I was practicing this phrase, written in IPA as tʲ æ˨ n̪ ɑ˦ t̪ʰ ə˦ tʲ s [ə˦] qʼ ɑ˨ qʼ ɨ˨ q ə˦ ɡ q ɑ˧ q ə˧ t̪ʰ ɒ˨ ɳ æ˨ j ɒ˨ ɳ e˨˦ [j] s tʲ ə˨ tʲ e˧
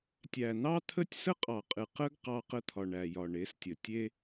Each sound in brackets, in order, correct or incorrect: correct, incorrect

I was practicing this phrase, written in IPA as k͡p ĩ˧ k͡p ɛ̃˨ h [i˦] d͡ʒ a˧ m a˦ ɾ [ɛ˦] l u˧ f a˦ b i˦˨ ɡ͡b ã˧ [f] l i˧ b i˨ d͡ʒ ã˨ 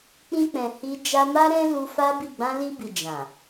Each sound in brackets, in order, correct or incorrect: incorrect, incorrect, incorrect

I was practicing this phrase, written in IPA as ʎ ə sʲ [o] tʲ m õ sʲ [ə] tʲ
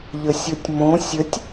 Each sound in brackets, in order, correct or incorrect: correct, correct

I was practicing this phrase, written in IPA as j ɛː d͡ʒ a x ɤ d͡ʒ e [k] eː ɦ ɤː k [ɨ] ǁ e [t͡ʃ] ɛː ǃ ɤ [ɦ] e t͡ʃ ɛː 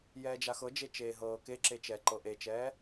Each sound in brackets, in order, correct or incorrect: incorrect, incorrect, correct, incorrect

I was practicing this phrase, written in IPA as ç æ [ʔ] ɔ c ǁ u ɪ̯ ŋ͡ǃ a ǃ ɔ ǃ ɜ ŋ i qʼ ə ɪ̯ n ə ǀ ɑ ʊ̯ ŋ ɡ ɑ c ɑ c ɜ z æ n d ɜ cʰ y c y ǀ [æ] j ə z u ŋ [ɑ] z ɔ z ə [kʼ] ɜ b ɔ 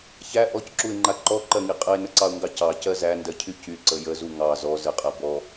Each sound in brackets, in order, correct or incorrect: correct, incorrect, correct, incorrect

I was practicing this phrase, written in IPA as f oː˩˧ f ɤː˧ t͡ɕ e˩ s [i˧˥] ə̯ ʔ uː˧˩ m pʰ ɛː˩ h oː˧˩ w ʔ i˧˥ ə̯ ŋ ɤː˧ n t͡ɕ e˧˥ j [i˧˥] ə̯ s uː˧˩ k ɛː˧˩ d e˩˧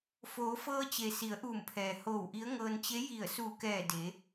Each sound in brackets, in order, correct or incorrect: incorrect, incorrect

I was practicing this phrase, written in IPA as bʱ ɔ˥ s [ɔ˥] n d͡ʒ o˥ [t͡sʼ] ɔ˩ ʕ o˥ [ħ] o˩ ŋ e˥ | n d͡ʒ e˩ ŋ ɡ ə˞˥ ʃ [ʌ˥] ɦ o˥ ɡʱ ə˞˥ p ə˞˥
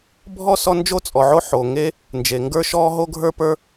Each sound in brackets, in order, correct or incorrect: correct, correct, correct, incorrect

